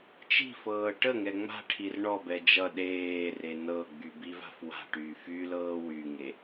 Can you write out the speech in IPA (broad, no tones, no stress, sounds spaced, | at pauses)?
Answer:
t͡ʃ i̤ f ɤː ʈ ə ŋ ɛ ŋ͡m a̤ ʈʰ i r ɳ ɔ b ɛ d͡ʒ ʌ ɗ eː r e n ɤ ɡ͡b y b i v a̤ f w a̤ ʈ yː f y l ɤː w y ŋ e